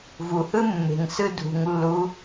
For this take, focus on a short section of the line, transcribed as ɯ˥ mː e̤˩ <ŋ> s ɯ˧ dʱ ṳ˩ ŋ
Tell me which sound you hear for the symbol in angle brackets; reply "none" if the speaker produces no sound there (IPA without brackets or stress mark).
ŋ